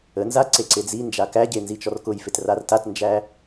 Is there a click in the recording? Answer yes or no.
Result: yes